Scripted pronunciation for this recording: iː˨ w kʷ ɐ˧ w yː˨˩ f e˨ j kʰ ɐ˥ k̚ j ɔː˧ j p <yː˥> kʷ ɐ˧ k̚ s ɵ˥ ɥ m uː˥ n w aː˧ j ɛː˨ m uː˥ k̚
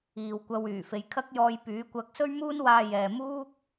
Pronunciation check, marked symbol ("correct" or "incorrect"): incorrect